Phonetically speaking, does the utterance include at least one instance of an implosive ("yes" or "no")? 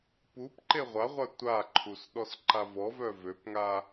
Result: yes